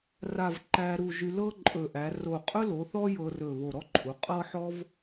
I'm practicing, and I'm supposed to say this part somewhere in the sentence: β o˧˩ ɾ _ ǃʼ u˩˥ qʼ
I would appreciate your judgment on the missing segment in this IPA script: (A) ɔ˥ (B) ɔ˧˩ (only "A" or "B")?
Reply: A